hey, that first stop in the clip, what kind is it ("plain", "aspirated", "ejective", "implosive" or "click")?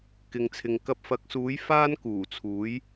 plain